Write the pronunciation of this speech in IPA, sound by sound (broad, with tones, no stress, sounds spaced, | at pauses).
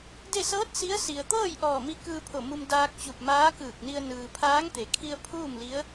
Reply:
d e˥˨ s ɤː˧˥ t̚ s i˧˥ ə̯ s i˩ ə̯ t̪ ɤː˥˨ j ʔ ɔː˧˩ m i˧ k ɯː˧ pʰ o˧˩ m u˧ m d aː˧ k̚ t͡ɕ u˧˩ p̚ m aː˧˥ k ɯː˧˩ k̚ n i˧ ə̯ n ɯː˩ pʰ aː˧˥ ŋ t̪ e˩˧ kʰ i˧ ə̯ pʰ uː˥˨ m l i˧˥ ə̯